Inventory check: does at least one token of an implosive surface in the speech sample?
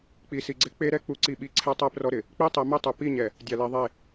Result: yes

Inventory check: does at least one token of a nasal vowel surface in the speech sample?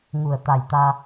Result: no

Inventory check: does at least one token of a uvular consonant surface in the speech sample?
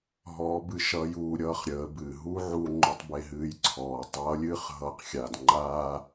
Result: yes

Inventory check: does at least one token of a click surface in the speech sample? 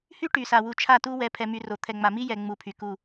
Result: no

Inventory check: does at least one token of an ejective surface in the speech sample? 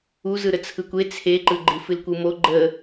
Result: no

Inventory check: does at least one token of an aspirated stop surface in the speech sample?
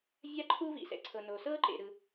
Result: yes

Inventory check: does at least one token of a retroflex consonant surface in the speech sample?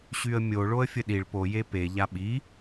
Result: yes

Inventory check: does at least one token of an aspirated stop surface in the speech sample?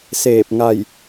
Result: no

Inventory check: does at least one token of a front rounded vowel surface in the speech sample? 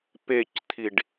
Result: no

